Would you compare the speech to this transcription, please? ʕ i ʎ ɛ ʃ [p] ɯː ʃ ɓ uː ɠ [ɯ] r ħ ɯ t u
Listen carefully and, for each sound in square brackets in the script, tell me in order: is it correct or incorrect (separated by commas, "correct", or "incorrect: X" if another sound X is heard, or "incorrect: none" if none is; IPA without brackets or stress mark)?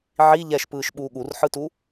correct, incorrect: u